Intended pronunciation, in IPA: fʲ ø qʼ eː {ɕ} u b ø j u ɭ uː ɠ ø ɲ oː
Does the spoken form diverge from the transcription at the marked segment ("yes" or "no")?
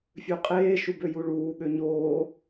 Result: yes